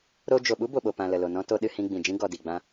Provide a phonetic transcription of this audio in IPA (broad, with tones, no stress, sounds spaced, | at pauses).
ɾ o˧ d͡ʒ o˨ ɓ u˦ b o˨ ɓ o˨ p ã˨ l ə˨ l o˨ n ɔ̃˧ t o˧ ɗ ɨ˧ h ĩ˧ ɡ͡b ĩ˨ d͡ʒ ĩ˦ ɡ ɔ˨ d i˨ ɡ͡b ã˧